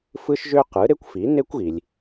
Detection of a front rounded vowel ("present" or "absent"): present